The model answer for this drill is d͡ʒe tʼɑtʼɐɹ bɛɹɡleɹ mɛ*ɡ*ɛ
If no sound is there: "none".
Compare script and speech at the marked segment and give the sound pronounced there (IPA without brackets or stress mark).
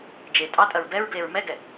ɡ